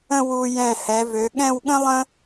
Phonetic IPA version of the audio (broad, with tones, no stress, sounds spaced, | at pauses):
ə̃˥˧ w u˧ j ɛ̃˧˩ h ɛ˩˧ v ø˩˧ ɠ ɛ̃˥˧ w ɠ ə̃˥ lˠ ə̃˥